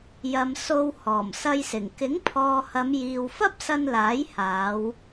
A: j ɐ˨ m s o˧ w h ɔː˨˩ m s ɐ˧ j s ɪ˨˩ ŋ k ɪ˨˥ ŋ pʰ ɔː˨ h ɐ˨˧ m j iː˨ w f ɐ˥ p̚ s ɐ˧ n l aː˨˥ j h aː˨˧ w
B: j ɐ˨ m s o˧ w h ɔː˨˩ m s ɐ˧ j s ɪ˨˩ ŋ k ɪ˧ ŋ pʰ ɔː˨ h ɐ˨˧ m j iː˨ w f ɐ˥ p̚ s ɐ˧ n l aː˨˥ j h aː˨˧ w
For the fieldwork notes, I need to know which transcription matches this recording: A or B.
A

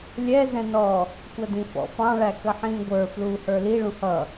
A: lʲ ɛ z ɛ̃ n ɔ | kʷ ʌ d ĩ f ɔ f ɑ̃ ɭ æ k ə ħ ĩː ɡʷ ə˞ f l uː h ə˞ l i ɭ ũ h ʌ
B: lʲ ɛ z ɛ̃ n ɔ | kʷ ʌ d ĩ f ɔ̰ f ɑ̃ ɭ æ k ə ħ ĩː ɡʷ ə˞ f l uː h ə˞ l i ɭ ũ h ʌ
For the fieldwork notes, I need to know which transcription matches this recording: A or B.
B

